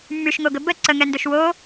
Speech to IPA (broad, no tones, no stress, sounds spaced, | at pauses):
mː y ʃ ŋ o ɡ ə b ə ǀ ə ŋ ɛ n d ɵ ʃ w o